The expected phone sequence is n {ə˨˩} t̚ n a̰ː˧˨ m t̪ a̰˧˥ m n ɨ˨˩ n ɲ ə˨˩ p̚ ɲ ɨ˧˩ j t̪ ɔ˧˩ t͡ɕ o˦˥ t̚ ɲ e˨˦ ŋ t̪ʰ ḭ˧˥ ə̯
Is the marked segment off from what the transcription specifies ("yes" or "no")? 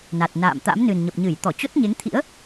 yes